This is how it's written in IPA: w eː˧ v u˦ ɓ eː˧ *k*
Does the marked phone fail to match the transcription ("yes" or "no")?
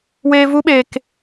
no